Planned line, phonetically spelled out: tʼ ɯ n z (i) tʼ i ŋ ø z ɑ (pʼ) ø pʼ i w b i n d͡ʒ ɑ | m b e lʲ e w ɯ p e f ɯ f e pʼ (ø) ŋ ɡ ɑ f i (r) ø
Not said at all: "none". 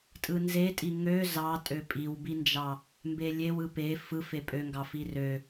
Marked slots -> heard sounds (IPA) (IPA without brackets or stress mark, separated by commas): e, tʼ, ø, r